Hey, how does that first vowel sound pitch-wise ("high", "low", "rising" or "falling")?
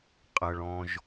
low